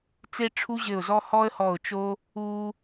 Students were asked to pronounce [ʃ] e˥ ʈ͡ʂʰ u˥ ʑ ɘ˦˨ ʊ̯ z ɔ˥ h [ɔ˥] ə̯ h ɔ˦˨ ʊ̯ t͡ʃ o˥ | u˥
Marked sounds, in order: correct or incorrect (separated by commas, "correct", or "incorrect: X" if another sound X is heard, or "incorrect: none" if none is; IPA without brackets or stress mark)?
incorrect: t͡s, correct